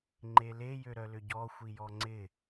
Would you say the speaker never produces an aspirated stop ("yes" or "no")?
yes